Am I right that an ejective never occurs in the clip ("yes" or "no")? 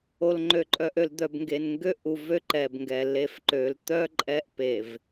no